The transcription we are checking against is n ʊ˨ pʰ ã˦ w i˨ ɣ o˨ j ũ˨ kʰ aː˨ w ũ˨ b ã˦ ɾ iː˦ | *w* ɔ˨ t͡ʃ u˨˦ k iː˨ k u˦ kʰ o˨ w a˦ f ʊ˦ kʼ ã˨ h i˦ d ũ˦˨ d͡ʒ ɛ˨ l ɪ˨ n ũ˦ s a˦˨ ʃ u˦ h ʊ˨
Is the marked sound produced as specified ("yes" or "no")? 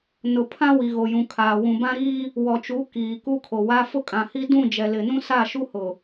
yes